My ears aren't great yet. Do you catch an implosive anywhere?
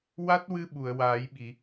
yes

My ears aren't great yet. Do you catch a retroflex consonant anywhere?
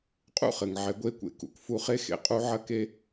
no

